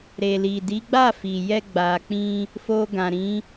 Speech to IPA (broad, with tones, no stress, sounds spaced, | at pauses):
ɾ e˨ l i˨ d i˨˦ ɡ͡b a˦˨ f i˨ j ɛ˧ ɡ͡b a˨ k͡p ĩ˧ | f o˧ ɡ ã˨ ɾ ĩ˨˦